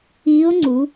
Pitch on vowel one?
rising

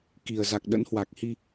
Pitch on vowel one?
low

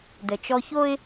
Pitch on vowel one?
low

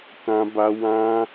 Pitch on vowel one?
high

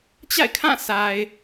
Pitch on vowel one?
falling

